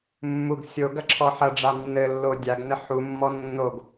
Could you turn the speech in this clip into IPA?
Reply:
mːuɡ sʲo ɡɐǁʰɔħɐɖ͡ʐa nːɘlːo dʲaɡnɘ ħumːɔ nːoɡ

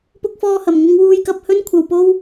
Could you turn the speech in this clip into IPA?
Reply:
pʊ˥k̚fɔː˥hɐ˧m ŋʊ˥ŋ wuː˥jkɐ˥p̚ hɵ˥nkʷʰɐ˧wpo˥w

